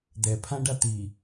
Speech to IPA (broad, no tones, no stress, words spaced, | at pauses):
d̪ɛ pʰãɖa t̪i